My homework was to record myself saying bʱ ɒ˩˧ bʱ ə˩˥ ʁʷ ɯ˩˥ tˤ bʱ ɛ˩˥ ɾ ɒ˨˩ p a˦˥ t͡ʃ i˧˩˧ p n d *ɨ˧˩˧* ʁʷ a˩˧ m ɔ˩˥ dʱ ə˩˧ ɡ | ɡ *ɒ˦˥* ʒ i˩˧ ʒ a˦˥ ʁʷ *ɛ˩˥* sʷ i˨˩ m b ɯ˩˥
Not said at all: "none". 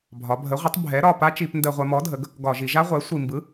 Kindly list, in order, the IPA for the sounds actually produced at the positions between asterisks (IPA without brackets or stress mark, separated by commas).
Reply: ə˧˩˧, ɒ˧˩˧, ɛ˩˥